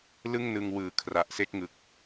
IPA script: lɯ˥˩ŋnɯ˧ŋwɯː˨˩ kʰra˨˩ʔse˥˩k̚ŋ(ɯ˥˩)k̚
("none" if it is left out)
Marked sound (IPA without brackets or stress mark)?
ɯ˨˩